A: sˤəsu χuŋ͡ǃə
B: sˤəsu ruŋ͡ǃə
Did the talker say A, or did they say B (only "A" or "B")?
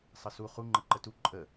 A